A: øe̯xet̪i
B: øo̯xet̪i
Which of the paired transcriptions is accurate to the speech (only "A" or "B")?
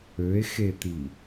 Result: A